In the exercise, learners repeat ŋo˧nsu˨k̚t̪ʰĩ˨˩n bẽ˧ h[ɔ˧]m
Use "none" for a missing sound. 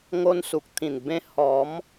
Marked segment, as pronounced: ɔ˨˦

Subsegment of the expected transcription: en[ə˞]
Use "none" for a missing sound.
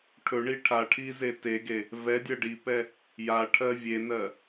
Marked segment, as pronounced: ɜ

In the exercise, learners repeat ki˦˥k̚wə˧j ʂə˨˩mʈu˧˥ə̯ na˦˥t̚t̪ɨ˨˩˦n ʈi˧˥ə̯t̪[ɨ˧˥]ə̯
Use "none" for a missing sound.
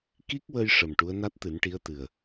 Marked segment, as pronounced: ɨ˨˩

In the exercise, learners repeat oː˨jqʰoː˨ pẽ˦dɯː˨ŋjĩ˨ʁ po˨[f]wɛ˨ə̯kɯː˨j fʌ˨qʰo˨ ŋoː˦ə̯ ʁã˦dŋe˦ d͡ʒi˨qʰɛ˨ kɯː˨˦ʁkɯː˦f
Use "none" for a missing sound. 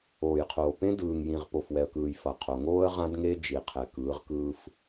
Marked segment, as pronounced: f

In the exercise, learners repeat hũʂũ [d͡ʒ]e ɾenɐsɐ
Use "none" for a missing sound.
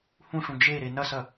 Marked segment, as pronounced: d͡ʒ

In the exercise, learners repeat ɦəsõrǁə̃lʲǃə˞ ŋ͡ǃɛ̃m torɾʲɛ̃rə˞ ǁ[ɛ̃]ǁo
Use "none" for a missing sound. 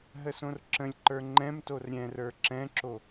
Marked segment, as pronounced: ɛ̃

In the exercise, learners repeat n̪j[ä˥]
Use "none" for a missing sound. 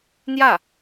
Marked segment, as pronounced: ä˥˩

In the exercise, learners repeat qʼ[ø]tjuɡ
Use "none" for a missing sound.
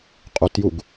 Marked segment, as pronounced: u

